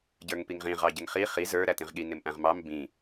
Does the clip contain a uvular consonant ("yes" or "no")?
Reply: yes